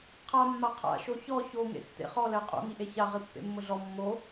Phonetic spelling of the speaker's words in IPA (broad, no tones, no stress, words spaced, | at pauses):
qʰamːa qʰa̰ʃo çɔ çoŋḛ tːḛχɔlɛ qʼo̰ŋiʔe çaʁi pːḛmːʊɮɔ mːo